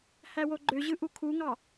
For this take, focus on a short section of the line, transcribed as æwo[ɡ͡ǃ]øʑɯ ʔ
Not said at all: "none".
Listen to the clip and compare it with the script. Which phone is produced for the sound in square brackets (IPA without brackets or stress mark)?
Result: ɡ͡ǃ